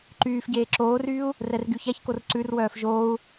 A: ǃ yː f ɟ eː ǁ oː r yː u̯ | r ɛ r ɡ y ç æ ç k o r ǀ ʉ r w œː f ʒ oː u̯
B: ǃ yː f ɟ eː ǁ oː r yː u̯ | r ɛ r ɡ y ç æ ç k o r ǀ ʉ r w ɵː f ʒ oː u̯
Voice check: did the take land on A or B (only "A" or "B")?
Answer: A